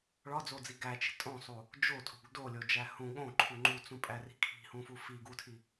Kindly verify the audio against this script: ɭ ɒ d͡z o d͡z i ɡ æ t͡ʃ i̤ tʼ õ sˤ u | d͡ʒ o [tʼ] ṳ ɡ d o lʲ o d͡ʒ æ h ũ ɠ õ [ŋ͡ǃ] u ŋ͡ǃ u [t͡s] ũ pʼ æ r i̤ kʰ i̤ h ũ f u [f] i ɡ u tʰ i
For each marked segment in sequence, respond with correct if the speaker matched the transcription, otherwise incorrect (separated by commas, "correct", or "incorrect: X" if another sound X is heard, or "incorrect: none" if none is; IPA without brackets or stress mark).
correct, incorrect: ǃʰ, correct, correct